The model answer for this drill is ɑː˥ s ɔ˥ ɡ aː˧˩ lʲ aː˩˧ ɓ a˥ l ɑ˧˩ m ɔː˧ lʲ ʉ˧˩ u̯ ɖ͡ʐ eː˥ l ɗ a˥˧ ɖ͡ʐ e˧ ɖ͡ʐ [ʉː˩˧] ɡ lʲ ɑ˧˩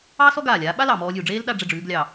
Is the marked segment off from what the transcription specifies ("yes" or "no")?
no